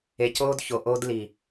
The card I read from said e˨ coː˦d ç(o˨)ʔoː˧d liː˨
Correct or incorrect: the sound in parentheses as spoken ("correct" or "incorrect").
correct